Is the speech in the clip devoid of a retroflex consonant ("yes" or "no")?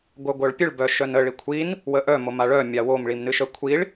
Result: no